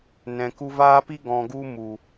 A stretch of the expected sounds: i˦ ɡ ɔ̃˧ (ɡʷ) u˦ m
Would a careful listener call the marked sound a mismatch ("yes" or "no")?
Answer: yes